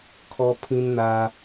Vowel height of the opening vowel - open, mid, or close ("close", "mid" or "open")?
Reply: mid